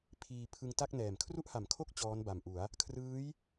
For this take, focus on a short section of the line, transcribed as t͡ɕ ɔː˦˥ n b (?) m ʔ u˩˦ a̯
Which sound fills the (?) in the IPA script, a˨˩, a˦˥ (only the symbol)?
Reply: a˨˩